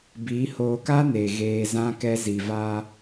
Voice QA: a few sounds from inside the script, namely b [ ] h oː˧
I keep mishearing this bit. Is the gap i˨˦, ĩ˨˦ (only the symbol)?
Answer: i˨˦